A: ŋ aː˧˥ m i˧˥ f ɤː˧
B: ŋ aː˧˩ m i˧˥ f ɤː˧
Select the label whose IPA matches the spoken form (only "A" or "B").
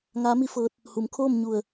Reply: A